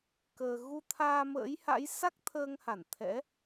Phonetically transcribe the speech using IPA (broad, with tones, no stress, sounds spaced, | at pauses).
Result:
k əː˧ ɣ u˧ t̪ʰ aː˧ m ə̰ː˧˥ j h a̰˧˥ j s a˦˥ k̚ t̪ʰ əː˧ ŋ h a˧˩ n t̪ʰ ɛ̰˧˥